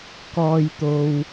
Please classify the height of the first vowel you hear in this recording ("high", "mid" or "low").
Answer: mid